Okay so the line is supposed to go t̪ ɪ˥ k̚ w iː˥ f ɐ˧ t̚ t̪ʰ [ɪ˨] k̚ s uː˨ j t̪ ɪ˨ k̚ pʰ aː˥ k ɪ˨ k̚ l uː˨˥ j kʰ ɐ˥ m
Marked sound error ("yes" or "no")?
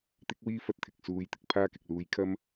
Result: no